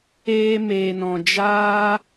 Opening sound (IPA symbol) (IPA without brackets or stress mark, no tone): eː